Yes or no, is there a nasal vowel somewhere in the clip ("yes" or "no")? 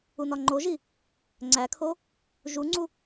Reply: no